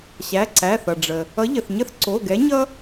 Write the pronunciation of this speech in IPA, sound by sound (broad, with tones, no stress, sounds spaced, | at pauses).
ɕ æ˩˧˩ ǀ æ˩˧˩ θ ʌ˩ ɖ͡ʐ ə˩ | ʌ˨˥ ʎ ə˩ θ ɲ ə˥ θ ǀ o˩˧˩ ɡ ɛ˨˥ ɲ ʌ˥